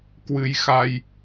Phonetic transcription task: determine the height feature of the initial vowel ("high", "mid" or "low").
high